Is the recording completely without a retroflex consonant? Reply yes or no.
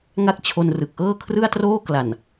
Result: yes